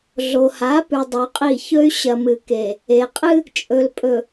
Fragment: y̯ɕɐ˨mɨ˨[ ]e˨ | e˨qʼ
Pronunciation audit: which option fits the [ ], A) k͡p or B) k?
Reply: B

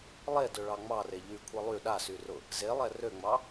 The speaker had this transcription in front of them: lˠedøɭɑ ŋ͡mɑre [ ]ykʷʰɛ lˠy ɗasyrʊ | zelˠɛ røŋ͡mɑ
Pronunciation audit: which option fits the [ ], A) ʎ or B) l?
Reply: A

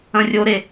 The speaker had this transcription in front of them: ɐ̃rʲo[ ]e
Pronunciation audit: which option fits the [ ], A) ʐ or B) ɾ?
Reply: B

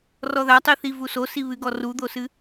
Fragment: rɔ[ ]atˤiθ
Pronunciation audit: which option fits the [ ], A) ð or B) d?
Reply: A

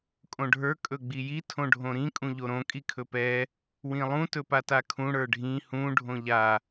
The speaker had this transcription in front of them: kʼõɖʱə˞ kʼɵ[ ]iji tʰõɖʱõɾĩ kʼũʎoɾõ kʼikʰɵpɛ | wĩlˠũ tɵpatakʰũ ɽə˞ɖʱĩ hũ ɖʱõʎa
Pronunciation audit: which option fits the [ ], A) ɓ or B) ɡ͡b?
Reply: B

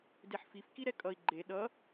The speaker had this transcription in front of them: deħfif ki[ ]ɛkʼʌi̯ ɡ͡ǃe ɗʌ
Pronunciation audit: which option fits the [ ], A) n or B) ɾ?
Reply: B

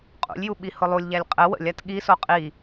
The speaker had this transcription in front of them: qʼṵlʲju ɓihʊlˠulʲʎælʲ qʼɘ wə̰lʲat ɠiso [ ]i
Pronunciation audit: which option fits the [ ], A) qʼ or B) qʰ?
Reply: A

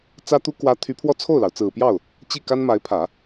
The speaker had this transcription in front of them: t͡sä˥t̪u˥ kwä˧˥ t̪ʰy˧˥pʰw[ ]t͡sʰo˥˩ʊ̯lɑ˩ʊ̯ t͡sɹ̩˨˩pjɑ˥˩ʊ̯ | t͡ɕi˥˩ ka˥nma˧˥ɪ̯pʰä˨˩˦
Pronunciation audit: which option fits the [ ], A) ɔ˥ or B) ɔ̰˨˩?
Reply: A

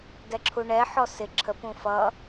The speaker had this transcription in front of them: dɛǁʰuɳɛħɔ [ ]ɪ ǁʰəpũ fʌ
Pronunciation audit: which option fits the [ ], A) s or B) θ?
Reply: A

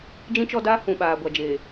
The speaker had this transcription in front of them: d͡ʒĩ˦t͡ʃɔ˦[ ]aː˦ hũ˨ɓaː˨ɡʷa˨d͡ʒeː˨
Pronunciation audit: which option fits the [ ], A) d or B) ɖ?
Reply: A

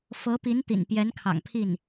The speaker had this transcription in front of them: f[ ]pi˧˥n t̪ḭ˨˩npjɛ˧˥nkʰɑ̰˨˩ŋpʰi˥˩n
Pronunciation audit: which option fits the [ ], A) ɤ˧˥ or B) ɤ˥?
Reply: A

